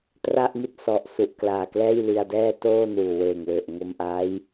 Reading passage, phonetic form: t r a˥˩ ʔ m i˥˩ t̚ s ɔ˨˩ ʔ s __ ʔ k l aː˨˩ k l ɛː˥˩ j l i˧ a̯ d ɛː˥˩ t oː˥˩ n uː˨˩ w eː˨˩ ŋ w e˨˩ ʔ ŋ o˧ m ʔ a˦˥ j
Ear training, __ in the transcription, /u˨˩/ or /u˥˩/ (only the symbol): u˨˩